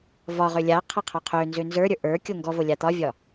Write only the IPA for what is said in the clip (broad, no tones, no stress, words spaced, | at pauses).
vɒʁø lʲaqʰa qʰɒqʰønzø nzə˞ɾʲə˞ ʔə˞kʲo ŋɡɔvo lʲat̪ɒvʲɒ